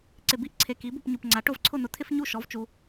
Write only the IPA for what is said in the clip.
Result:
ǀ ɪ˨˩ b i˥ ʔ ǀʰ e˨˩ k i˩˥ b u˥˨ p ɲ u˨˩ p ŋ͡ǀ a˩˥ ʈ ʊ˥˨ v ǀʰ ʊ˥˨ n̪ ʊ˩˥ t̪ʰ ɪ˥ f ɲ u˥˨ ʃ ɔ˩˥ v t͡ʃ u˩˧

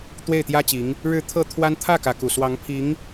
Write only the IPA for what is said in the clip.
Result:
t̪ w e˥˩ ɪ̯ t̪ j ä˥ t͡ɕ i˧˥ ŋ | ɻ ɻ̩˧˥ t̪ʰ ɤ˥˩ t̪ʰ w a˥ n t̪ʰ ä˥˩ k ä˧˥ k u˨˩ s w ɑ˧˥ ŋ pʰ i˧˥ ŋ

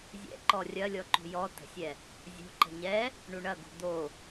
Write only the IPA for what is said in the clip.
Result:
zʲ ɛ̰ ǃ ɔ rʲ ɐ lʲ ɔ ǃ o̤ j ɔ t ə̤ sʲ ɛ | zʲ o̤ ǃ ə̤ ɲ ɛ | ɳ u ɳ ɐ ɡ o̤ d̪ o

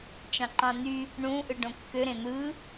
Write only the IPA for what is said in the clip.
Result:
t͡ʃ ɑ̃ ǃ ɑ̃ n̪ y | ɳ ũ ʔ ɯ ɖ õ kː ø ɾ ẽ n̪ ɯ

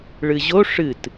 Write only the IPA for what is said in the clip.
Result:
ɭ ɨ ʑ o ʂ ɨ t

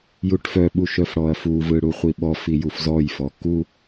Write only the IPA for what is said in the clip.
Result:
j u ʈ f œ ɓ u ʃ œ f ɽ ɔ ɐ̯ f u v ɯ ɽ u χʷ i ɓ ɔ f i j u f z ɔ j f ɔ k u

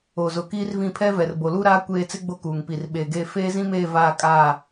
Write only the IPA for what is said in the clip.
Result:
o˨ z ʊ˨ k iː˦ r v ĩ˦˨ pʰ ɛ˦ v ɛ˨ r b o˨ l u˦ ɾ aː˦ kʷ eː˦ t͡s ɪ˦ ɡ͡b o˦ k uː˨ ŋ p i˨ r ɓ eː˨ ɡ eː˦˨ f eː˦ z ĩ˦ m eː˦˨ v aː˦˨ kʼ aː˦˨

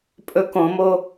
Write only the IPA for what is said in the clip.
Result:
pʼ ɵ k õ m o

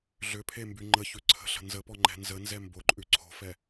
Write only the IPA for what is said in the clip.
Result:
ɮ ʏ pʰ e m b y ŋ͡ǃ ə ç ʉ ǀʰ ə̤ ɬ ə̤ n z ə p ɔ ŋ͡ǃ ɛ̤ n z ə n z ɛ m b o ǃʼ ʉ ǀʰ o̤ f ɛ

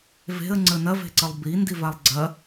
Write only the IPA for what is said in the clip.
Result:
v e̤ ə̯ ŋ͡ǀ ə n ɐ v e̤ ǀ ə lˠ b i n d i v a lˠ ɡ͡ǀ ɐ

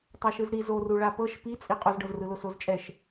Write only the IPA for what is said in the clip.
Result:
tˤ a ʃ ɯ z ɾ i z o r u ɭ a p ɤ ʃ p i t͡sʼ i qʼ u z ɖ ɤ z r ɯ l o s o z t͡ʃʼ ɛ ʃ

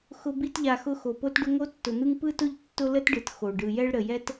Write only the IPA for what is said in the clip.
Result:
x ʊ˧ b i˧ t ʎ a˨ x ʊ˧ x o˨ p o˦ t ɖ ʊ˦ ŋ o˦ tː ʊ˨ n̪ ɯ˦ ŋ p ɯ˦ t ʊ˦ ʎ tː ʊ˦ l ə˦ t ɖ ɯ˨ t x o˨ ɖ ɯ˨ j ɛ˦ ɭ ɾ ə˨ j ɛ˦ t

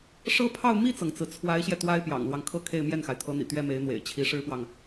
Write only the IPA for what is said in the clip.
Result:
ʂ ɤ˥ pʰ ɑ˥˧ ʊ̯ m i˥˩ t͡s ɤ˩ ŋ t͡s ɹ̩˩ t͡sʰ w a˧˥ ɪ̯ ɕ j ɛ˧ t̪ w a˥ ɪ̯ p j ɑ̰˨˩ ŋ l w ɑ˦ ŋ kʰ ɤ˥˧ kʰ e˥˧ ɪ̯ m j ɛ˥˩ n x a˩ ɪ̯ t̪ʰ ɤ˧˥ n̪ ḭ˨˩ t̪ ɥ ɛ˥ m e˧˥ ɪ̯ n̪ w ḛ˨˩ ɪ̯ t͡ɕʰ i˧˥ ʂ ɻ̩˥ p w ɑ˨ ŋ

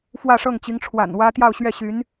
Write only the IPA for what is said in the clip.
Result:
f w ä˥˧ ʂ ɤ˥˩ ŋ t͡ɕ i˧˥ ŋ ʈ͡ʂʰ w a̰˨˩ n w ä˥ t̪ j ɑ˥˧ ʊ̯ ɕ ɥ ɛ˥˩ ɕ y˧˥ n

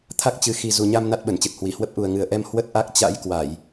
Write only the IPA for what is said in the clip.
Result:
t̪ʰ a˦˥ k̚ t͡ɕ ɨ˨˦ x i˨˩ z u˨˩ ɲ a˧ m n a˦˥ t̚ ɓ ə˧˩ n t͡ɕ ɨ˨˩ t̚ h w i˧˩ h w ə˦˥ p̚ ʔ u˨˩ ə̯ ŋ ɨ˨˩ ə̯ ʔ ɛ˧ m h w ə˦˥ t̚ ʔ a˦˥ k̚ t͡ɕ a̰˧˥ j k w a˧˩˨ j

